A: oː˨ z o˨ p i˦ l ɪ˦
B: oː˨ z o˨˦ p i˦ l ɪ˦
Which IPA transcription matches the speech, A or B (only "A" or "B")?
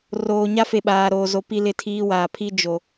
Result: B